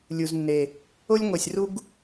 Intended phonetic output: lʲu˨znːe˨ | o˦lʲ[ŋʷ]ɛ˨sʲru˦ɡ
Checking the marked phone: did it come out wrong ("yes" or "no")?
no